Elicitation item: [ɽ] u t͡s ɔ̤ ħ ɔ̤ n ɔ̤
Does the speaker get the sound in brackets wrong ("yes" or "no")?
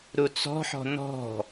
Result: yes